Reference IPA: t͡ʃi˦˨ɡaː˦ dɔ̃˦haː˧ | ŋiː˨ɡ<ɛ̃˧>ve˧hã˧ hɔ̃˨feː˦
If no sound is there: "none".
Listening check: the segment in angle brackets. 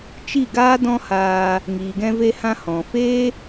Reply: ɛ̃˧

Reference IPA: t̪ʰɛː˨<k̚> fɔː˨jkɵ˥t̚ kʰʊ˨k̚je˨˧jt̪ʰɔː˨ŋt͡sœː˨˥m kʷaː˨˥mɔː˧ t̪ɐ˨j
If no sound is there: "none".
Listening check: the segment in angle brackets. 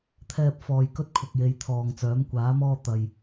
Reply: p̚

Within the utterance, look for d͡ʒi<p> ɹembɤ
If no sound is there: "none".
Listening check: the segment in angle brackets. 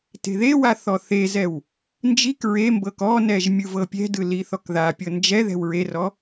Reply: k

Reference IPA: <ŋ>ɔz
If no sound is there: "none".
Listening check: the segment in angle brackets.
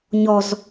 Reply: ɲ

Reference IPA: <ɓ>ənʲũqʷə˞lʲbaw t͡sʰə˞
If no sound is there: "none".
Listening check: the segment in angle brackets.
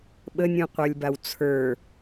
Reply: ɓ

